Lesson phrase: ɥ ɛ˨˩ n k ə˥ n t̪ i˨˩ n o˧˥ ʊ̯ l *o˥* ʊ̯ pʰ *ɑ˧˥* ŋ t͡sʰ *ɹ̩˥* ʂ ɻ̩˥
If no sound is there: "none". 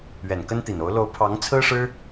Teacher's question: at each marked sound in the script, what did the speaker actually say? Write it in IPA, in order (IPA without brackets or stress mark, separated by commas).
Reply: o˧˥, ɑ˧˥, ɹ̩˥